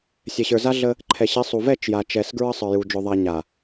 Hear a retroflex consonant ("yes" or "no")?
no